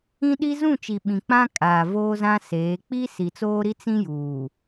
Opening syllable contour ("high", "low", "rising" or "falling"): high